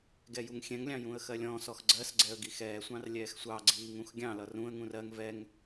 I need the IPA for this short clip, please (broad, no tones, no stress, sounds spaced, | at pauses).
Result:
ɡ ɛ j u ŋ xʲ ɛ̃ ŋ lʲ ɑ̃ j ũ ə̯ x ɜ lʲ ɔ̃ː s ɔ x ɡ͡ǀ ɜ s ɡ͡ǀ ɛ ə̯ ɡ i x ɛː sʷ ɑ̃ r lʲ ɛː x sʷ ɑ ɡ͡ǀ iː ŋ ũ x ɡʲ ɑ̃ l ʌ r ũ ə̯ ŋ ũ r ɜ ŋ v ɛ ŋ